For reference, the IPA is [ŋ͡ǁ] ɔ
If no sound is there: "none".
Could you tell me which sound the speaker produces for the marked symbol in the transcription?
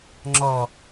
ŋ͡ǁ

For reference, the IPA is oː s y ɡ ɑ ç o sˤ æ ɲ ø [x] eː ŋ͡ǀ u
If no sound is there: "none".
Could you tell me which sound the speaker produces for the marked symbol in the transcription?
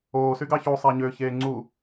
ç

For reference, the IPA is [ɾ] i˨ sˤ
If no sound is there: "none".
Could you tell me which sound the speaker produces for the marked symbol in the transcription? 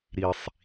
ɾ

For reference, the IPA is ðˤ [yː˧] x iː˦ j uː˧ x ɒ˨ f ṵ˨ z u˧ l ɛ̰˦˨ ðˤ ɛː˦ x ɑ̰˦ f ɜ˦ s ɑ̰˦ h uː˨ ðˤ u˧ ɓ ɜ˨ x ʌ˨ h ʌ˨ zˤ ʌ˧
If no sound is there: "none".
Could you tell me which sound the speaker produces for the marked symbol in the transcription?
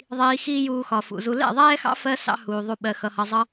iː˧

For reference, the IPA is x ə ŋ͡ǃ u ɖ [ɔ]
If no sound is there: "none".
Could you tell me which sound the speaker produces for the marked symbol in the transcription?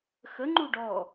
ɔ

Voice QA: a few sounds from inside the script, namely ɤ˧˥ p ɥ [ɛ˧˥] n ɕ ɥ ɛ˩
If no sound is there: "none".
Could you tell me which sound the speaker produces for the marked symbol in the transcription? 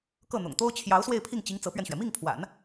ɛ˧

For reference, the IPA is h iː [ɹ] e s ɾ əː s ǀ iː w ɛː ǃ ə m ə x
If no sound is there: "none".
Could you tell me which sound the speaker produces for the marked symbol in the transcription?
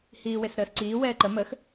w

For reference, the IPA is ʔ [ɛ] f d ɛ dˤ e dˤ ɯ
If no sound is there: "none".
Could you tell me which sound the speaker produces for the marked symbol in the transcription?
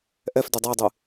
ɛ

